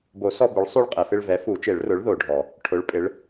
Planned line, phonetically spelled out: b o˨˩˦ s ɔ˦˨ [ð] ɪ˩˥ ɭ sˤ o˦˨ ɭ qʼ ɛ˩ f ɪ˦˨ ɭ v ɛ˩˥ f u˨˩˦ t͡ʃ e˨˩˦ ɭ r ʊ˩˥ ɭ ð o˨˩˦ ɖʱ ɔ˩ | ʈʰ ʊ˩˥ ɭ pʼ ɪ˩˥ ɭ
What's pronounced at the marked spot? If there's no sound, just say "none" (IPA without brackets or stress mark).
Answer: b